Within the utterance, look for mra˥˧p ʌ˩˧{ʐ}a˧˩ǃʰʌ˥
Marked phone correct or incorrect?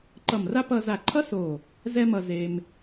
incorrect: z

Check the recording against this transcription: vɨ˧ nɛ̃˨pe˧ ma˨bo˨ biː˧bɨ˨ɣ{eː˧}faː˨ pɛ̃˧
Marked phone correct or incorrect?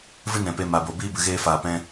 correct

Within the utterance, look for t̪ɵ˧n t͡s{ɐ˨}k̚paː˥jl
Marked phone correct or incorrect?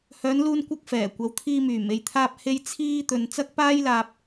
incorrect: ɐ˥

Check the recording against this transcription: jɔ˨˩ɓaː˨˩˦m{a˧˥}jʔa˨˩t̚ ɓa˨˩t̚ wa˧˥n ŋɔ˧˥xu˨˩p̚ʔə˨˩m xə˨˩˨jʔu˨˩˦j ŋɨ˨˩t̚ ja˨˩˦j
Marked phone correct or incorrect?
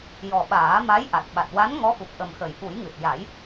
correct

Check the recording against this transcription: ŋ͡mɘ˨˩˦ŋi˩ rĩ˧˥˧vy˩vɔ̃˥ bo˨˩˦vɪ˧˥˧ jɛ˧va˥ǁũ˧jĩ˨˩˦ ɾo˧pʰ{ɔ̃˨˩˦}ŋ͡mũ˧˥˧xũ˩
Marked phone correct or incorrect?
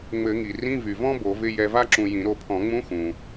correct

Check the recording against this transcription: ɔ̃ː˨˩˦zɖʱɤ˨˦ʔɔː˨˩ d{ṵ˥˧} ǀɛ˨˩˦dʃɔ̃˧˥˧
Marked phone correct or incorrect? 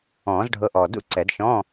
correct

